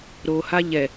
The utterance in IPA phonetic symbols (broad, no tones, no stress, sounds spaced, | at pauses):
ɾ o h a ʎ ɛ